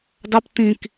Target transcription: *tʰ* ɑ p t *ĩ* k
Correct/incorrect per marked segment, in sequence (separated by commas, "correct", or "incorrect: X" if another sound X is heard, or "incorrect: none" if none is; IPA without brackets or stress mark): incorrect: d, correct